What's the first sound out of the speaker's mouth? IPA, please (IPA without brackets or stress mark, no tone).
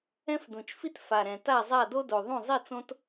ɛ̃